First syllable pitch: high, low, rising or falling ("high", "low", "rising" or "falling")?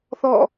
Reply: falling